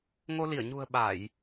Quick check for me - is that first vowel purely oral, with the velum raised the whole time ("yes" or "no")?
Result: yes